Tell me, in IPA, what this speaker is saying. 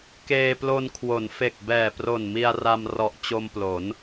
k eː˧ p l o˧ n kʰ w o˩˦ n f e˨˩ k̚ b ɛː˨˩ p r o˨˩ n m i˧ a̯ r a˧ m r ɔ˨˩ ʔ t͡ɕ o˧ m p l o˩˦ n

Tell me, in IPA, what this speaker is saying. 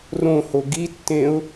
r õ h o ɡ i tː ẽ ʊ̯

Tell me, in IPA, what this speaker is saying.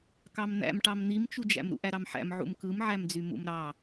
k ɑ m n̪ æ̰ m ʈ ɑ m n̪ i m t͡ʃ u d͡ʒ æ̰ m ɾ ṵ ʔ æ ɾ ɑ m ħ æ̰ m ʕ ṵ m k ɯ m ʕ æ m d͡z y m ṵ m ɾ ɑ

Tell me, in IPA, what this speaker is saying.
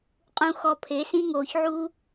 qʼ ũ˦ x ɔ˧ pʰ e˨˦ s ĩ˦ ŋ oː˨ ç ʕ uː˦

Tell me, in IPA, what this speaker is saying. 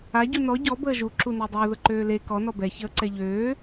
a ɟ u n ɔ ɟ ɔ b əː ʒ u ǁ u n ø dˤ əː ð ə ǃ øː l e k ɔ n ɔ b ɛ ç əː ǀ ɛ ʎ øː

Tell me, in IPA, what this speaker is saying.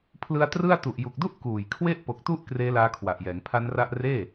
pʰ l ɯ˧ a̯ t r ɯ˥˩ a̯ t u˨˩ ʔ j u˨˩ k̚ d u˥˩ ʔ k uː˨˩ j kʰ w e˥˩ ʔ p o˨˩ k̚ t u˥˩ ʔ k r eː˦˥ l aː˦˥ kʰ w a˨˩ ʔ j ɛː˩˦ ŋ pʰ a˦˥ n r a˥˩ ʔ r eː˥˩

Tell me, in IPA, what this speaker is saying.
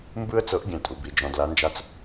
m b ɯ˥ ə̯ t͡s ɤ˧˥ ʔ ɡʲ ɛ̃˧˥ tʼ u˩˧ b i˩˧ d͡ʒ ɔ̃˧ d l a˧˥ n d͡ʒ a˥ t͡s

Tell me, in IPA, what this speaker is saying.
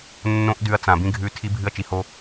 nː õ˦ ʔ d ʉ˧ ɐ̯ t͡s ã˨ b ĩ˧ ɡʱ ʉ˧ tʰ i˦ bʱ ɨ˦ ɐ̯ t͡ʃ i˨ h o˧

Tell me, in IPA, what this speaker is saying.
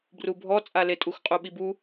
b r u bʱ ɔ t͡sʼ a l e tʼ u x qʼ u ɓ i b u

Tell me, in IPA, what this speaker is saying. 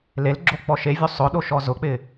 l e l ɡ͡ǁ o k͡p ɔ ʃ e vʲ u sˤ ʊ ɗ o ʃ ɔ z ʊ k͡p ɪ

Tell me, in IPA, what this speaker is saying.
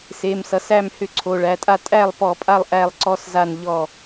s e˩˧˩ m s ʌ˩˧ s æ˥˩ m h ʏ˥˩ ǀʰ o˩˧˩ ɭ æ˩˧˩ tʼ a˥˧ tʼ æ˥˩ lˠ p ɔ˧˩˧ pʼ a˥˩ lˠ ʔ æ˥˧ lˠ ǀ ɔ˥˧ s z a˥˩ n ʎ ɔ˥˩

